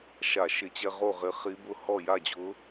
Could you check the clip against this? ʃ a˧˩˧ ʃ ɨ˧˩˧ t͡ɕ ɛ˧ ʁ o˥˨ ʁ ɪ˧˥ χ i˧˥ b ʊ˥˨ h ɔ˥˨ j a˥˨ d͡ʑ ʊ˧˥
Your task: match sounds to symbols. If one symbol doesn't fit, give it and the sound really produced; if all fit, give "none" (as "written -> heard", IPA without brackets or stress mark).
ɨ˧˩˧ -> ɪ˧˩˧